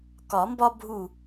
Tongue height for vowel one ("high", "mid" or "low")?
low